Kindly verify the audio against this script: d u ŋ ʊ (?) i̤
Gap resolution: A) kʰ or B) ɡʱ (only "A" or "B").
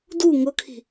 A